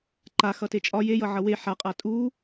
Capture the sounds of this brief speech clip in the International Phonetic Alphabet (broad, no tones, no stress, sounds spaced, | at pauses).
ǃ a x ʌ t e t͡ʃʼ ɒ j e j ʌ ʕ ʌ w e ħ a qʼ a tʼ u